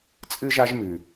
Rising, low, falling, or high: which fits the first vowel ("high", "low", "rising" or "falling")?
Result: high